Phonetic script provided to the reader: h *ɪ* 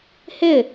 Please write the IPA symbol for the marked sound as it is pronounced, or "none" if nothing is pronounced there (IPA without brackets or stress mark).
ɪ